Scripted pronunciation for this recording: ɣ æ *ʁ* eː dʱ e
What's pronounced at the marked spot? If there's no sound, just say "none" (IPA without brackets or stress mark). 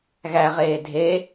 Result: ʁ